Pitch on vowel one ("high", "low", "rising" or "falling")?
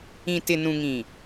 low